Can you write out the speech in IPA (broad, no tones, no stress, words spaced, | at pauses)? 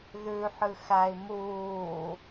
ðʉħɨ xæi̯ muː